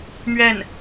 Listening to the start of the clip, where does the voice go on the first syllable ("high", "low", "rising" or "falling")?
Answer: falling